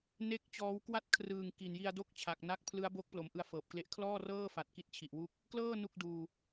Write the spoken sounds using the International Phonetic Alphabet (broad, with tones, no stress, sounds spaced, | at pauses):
n e˥˩ k̚ t͡ɕ ɔː˦˥ w k w a˦˥ t̚ kʰ r ɯː˨˩ ŋ k i˨˩ n j i˧ a̯ d o˥˩ k̚ t͡ɕʰ a˨˩ k̚ n a˦˥ k̚ pʰ l ɯ˦˥ a̯ b o˦˥ k̚ p l o˩˦ m ʔ ɯ˧ a̯ f ɤː˨˩ p̚ k l e˦˥ ʔ kʰ l ɔː˥˩ r ɤː˥˩ f a˨˩ t̚ k i˥˩ t̚ t͡ɕʰ i˨˩ ʔ w u˥˩ k̚ | k l ɤː˥˩ n u˥˩ k̚ d uː˧